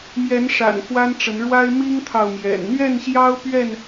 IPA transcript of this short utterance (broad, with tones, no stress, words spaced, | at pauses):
mjɛ˨˦nʂa̰˨˩n xwa˦nʈ͡ʂə˨˦n ɻwa˦ɪ̯ mi˦ŋt̪ʰɑ˨ʊ̯mjɛ̰˨˩n n̪ɥɛ˥˨nɕjɑ˦ʊ̯ pɥɛ˥˨n